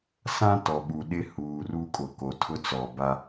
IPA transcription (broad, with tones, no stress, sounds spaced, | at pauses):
s ã˦ t ɔ˨ ɓ u˨ ɗ ɪ˦ h uː˨ r u˦ kʼ ʊ˨ k o˨ tʰ ʊ˦ t͡s ɔ˨ b a˦